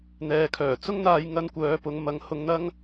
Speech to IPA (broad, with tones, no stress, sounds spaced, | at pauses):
n̪ ɛː˨ kʰ œː˨˩ t͡s ʊ˥ ŋ n̪ aː˧ j ŋ ɐ˧ n kʷ œː˨˧ p ʊ˨˧ ŋ m ɐ˨˧ ŋ h ʊ˧ ŋ n̪ ɐ˥ ŋ